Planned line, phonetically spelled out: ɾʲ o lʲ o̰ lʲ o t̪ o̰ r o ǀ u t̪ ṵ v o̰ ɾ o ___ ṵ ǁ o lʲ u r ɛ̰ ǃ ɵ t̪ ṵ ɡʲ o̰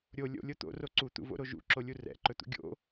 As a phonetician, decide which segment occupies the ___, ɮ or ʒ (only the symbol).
ʒ